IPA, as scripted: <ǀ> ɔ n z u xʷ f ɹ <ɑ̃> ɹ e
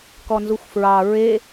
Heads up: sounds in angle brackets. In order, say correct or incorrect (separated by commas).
incorrect, incorrect